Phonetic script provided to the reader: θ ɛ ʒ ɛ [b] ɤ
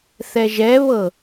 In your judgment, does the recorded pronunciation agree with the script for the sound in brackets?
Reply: no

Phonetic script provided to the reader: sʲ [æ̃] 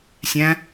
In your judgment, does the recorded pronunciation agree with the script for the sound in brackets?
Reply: yes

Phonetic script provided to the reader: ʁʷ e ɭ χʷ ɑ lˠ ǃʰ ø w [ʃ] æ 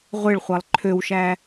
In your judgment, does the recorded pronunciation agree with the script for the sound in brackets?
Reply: yes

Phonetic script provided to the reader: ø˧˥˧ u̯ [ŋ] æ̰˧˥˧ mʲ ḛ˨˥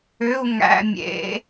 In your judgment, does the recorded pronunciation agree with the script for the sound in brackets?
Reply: yes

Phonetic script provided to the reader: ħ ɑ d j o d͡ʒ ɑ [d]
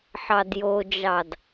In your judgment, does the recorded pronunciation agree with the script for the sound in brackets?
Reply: yes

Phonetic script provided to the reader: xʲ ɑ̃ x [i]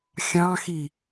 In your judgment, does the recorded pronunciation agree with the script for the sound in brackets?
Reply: yes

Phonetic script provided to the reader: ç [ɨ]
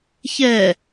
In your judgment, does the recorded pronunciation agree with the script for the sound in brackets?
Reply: no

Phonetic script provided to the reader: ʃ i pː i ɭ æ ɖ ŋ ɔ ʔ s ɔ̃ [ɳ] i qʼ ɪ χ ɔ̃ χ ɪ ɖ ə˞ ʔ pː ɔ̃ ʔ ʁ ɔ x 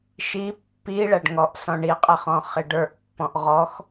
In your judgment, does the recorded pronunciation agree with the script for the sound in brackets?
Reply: yes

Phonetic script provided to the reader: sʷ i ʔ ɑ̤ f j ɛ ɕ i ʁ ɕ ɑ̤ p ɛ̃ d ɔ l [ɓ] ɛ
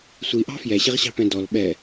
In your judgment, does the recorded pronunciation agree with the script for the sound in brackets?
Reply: yes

